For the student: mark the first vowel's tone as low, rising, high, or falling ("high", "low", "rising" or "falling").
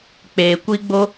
low